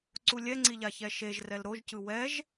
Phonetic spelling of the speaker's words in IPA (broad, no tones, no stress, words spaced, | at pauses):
ǀulʲɛŋ͡ǀiʎa çɛʃeʒ rɛlɾoʒcɯ wɛʒ